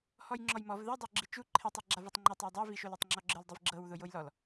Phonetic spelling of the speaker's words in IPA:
hɔjŋ͡ǁɔjmɔv ðɛdˤo ɡ͡ǁit͡ʃu ǃʰetˤi ɡ͡ǁavutˤŋ͡ǃetˤaw dˤɛviʃol etˤŋ͡ǁɔɡ͡ǁɯl dˤivɡ͡ǁɤwðo jojlɔl

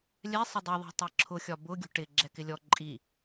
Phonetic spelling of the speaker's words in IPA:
lʲɛ sˤɪdˤiðˤɛ̤ tˤɜǁʰʊxʲɒ bʊ ɡʲṳʈɪ ɡ͡ǁɛkɪlʲɔ ǃʼi

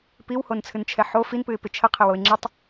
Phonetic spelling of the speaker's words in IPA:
piwhont͡sʰɨnt͡ʃʰɛ ħo finpɨɪ̯pɪ t͡ʃʰəqʰɪwoɪ̯ ŋ͡ǁɪtˤ

